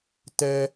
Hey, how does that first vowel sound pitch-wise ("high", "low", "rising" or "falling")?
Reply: high